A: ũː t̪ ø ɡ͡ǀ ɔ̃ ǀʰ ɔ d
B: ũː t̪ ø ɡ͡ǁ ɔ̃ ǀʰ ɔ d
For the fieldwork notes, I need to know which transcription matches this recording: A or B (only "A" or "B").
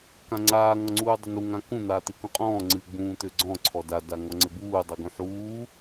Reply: A